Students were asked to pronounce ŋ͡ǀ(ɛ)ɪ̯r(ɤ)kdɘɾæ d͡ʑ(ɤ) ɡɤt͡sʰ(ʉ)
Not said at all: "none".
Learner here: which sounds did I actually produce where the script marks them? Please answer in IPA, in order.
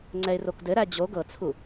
ɛ, o, o, u

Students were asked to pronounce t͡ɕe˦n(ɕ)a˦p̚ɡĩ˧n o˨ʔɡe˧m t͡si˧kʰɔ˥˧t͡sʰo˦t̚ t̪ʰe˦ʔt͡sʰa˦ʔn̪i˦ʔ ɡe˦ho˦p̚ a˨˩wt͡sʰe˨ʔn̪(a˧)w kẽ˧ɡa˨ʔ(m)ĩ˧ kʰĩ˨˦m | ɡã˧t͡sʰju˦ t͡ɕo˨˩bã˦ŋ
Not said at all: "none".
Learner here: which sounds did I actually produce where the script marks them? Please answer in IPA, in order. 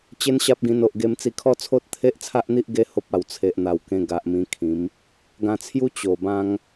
ɕ, a˨˩, m

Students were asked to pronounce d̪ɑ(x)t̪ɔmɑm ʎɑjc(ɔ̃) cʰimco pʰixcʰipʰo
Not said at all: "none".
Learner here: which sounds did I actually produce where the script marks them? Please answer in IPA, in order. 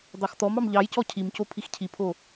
x, ɔ

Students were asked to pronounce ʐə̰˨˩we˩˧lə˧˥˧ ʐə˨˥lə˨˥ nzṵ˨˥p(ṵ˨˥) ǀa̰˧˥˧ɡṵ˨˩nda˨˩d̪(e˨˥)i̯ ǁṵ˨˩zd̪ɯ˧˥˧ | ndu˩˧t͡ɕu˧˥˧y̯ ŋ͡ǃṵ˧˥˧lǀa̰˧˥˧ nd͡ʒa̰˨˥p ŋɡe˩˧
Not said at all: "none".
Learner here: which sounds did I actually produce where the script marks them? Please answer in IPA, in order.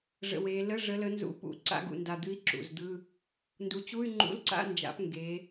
ṵ˨˩, ɨ˨˥

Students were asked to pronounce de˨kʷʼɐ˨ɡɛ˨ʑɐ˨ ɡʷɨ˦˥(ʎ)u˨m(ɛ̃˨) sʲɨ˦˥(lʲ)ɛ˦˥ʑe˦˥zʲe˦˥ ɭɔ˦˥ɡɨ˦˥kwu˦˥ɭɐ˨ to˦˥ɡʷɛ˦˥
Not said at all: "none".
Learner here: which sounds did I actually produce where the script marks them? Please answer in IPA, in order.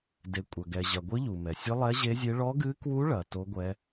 ʎ, ɛ˨, lˠ

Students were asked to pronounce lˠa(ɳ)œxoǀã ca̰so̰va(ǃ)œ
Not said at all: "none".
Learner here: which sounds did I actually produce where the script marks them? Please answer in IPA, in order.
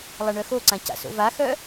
ɳ, x

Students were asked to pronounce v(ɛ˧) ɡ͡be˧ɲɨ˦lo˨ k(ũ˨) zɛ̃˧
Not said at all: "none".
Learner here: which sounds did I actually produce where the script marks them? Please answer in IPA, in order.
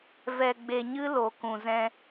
ɛ˧, ũ˨

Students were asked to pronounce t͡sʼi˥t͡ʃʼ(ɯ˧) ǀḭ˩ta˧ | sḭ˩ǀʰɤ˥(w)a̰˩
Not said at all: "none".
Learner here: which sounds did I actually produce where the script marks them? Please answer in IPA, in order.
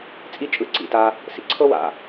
ɯ˧, w

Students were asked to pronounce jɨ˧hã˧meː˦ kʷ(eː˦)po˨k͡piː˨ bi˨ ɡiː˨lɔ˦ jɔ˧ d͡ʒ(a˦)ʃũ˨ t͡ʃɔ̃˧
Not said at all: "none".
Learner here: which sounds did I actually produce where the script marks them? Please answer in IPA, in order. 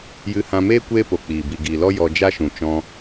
eː˦, a˦

